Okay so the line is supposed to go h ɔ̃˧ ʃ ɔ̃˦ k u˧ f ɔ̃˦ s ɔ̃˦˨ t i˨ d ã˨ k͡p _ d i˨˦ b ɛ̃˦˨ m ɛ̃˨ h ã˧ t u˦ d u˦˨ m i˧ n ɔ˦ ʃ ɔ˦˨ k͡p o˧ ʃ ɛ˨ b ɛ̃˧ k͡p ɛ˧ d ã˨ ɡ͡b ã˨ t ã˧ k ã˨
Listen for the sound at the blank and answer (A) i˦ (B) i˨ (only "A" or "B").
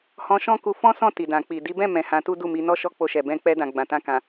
B